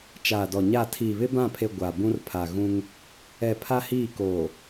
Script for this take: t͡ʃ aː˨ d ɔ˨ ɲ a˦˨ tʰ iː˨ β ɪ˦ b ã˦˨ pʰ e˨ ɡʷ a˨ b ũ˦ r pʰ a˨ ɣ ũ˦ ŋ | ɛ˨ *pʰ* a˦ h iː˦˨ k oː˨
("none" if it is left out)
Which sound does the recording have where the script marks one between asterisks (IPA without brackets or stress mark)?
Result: pʰ